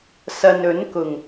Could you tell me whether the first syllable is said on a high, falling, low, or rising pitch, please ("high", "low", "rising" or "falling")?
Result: low